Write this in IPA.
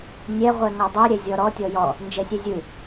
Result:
nʲɛ ʁʷɛŋɔdˤe ɾʲɛzʲɔɾɔ tʲɔjɔ | nd͡ʒɛsʲɛzʲɯ

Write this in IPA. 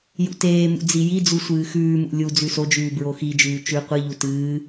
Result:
jṵteːmṵ d͡zijid͡zu sʷɨːxʉːmṵ lʲu d͡zʉsod͡ʒʉː bɹoxid͡ʒʉː t͡ʃʉ qʷɨʎu tɨː

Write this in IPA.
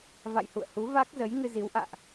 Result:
va̰˧˨jhṵ˧˨ə̯hu˨˦ va˦˥k̚ zə˨˦jŋɨ˧zi˨˦wʔa̰ː˧˨ʔ

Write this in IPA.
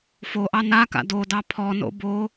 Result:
foʔɑ naka̰ dodɑ pʰɔno̰ bo

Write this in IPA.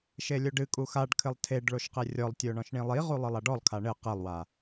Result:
ʃelʲoɖɨkʼu xaɖkʰɘlˠ tʰeɖ ɭoʃqerʲɔlˠtʲo ɳɔ̃ʃɳĩlˠiʁu lˠɨlˠaɖɔlˠkʰa ɳɘ qelˠwa

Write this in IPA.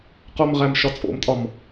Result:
qomʁæmʃɒ t͡sʼo̰mtʼɒm

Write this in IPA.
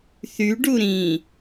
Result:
θyɖu ɾĩ

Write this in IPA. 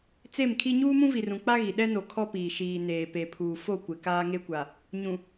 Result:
t͡se˦˨mkʰi˦ ɲuː˦mũ˦vi˨rũ˨ k͡pa˦ɣi˨ ɗɛ˦no˨ kʰɔ˦piː˨ ʃiː˨neː˨pe˨pʰuː˨ fo˦˨kʷɪ˨ kaː˦ŋe˦kʷa˨ | ɲũ˨

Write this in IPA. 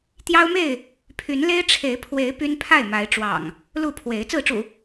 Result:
t̪jɑ˦ʊ̯me˥˨ɪ̯ | pʰy˨˦nle˦ɪ̯ ʈ͡ʂʰe˨˦ɪ̯pʰwe˨˦ɪ̯ py˦npʰa˥˨ɪ̯ma˨˦ɪ̯ ʈ͡ʂwɑ̰˨˩ŋ | lu˥˨pʰwe˨˦ɪ̯ t͡sɹ̩˥˨ʈ͡ʂṵ˨˩

